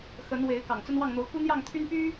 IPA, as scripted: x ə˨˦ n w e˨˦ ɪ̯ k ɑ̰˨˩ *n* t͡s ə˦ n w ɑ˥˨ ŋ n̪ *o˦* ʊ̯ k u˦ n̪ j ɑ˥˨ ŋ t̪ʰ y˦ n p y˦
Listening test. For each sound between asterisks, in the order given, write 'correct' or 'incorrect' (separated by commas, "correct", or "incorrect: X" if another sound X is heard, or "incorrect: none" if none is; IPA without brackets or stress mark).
incorrect: ŋ, incorrect: o˨˦